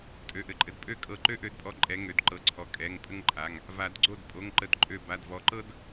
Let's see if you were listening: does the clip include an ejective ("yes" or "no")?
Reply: yes